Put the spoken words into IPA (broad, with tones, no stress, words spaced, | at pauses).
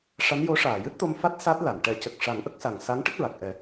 ʂa˧˥njo˧˥ʂaː˨˩˨ jɨ˦˥t̚t̪o˧mfa˦˥t̚ sa˦˥t̚la˨˩˨n ʈɛ˨˩˦cə˨˩k̚ ʂa˨˩˦ŋʔə˦˥k̚sa˨˩ŋ sa˧˥ŋʈə˦˥k̚ɹa˨˩k̚ʔɛ˨˩˦